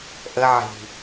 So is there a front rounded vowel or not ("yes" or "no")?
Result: no